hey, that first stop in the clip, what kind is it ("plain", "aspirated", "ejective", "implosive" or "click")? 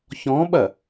implosive